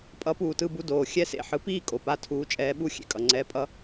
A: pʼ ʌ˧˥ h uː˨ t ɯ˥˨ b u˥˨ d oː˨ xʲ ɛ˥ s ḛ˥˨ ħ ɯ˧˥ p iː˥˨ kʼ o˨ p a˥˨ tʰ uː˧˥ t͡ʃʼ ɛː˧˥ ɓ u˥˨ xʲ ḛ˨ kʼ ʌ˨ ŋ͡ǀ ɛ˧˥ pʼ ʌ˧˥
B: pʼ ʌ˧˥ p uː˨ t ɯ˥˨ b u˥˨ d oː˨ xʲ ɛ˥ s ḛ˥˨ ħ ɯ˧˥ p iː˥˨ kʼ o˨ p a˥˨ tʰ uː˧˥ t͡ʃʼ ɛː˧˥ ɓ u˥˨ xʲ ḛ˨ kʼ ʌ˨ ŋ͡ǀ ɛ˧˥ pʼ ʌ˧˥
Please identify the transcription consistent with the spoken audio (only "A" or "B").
B